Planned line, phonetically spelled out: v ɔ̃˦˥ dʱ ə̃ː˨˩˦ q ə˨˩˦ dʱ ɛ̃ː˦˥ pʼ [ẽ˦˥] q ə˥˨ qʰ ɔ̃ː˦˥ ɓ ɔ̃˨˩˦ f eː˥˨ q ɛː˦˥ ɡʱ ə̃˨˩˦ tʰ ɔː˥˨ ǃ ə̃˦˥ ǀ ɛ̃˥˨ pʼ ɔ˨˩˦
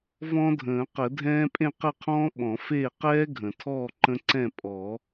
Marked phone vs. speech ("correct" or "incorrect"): incorrect